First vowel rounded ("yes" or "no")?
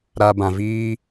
no